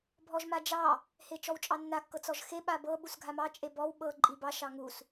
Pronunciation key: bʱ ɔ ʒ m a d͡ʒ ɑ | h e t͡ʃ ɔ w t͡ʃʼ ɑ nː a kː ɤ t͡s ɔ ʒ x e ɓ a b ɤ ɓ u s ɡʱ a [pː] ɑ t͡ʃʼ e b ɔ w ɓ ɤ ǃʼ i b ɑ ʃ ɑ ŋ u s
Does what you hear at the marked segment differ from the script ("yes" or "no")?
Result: yes